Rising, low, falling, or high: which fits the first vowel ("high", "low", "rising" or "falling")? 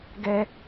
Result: high